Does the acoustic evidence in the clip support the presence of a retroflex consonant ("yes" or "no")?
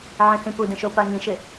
no